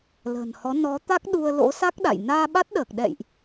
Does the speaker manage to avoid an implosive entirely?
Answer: no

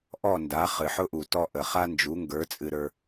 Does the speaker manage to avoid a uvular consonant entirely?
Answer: no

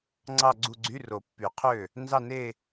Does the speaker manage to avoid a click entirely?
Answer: no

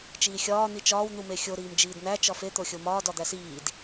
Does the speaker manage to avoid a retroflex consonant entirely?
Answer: yes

